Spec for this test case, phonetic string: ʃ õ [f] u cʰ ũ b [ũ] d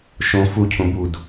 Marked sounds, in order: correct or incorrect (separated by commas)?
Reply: correct, incorrect